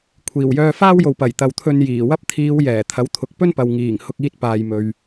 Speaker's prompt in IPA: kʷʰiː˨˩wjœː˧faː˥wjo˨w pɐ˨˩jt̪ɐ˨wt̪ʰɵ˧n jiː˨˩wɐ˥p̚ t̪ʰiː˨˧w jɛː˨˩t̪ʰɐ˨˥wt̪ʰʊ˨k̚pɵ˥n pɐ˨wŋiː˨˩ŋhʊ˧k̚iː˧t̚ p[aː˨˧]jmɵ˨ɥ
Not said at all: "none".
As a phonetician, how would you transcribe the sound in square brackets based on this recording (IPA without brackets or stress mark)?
aː˨